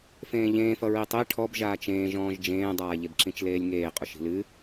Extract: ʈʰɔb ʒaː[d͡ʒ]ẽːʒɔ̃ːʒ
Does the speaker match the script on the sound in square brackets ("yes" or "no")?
no